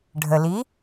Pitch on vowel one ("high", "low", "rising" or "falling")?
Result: low